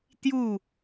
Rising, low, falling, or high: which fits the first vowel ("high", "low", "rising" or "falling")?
falling